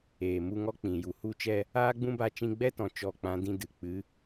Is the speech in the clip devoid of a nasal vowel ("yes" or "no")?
no